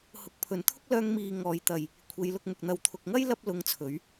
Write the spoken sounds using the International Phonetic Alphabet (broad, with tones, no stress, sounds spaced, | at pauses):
h ʊ˨˥ k̚ pʰ ɵ˨ n t̪ʰ ʊ˥ k̚ l œː˧ ŋ m iː˨ ŋ ɔː˨˧ j t̪ ɐ˨ j | kʷʰ e˨˧ j l ʊ˧ k̚ m ʊ˨ k̚ n̪ ɐ˨ w t̪ʰ ʊ˨ k̚ ŋ ɐ˥ j l ɐ˥ p̚ l ʊ˧ ŋ t͡sʰ ɵ˨˧ ɥ